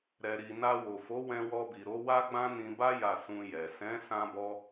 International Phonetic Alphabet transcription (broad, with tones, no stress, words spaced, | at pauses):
ɾɛ˨ɾi˨ na˧wo˨fo˨˦ wɛ̃˧wɔ˧bi˨ ɾo˨˦ wa˦ɡ͡bã˦nĩ˧ ba˦ ja˦˨ sũ˧jɛ˨ sɛ̃˨˦ sã˦bɔ˦